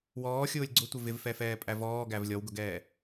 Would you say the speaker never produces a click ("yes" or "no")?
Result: no